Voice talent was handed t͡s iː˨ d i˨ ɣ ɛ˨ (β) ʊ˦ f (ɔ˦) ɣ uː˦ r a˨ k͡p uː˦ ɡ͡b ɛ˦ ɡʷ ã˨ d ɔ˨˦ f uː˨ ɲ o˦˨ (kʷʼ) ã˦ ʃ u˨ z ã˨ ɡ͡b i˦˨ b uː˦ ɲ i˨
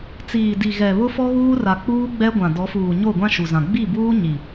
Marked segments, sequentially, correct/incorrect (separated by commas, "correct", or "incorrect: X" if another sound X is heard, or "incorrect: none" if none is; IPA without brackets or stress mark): correct, correct, incorrect: ɡʷ